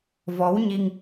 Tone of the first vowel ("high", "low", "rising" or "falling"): rising